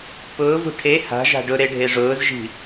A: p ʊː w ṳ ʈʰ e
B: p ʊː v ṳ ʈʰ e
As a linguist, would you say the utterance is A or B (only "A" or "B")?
B